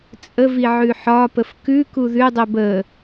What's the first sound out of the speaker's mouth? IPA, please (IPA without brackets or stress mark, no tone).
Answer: t͡sʼ